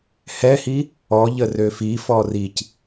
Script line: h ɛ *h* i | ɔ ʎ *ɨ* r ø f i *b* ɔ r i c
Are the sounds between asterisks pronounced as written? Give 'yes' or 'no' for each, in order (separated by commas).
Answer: yes, no, no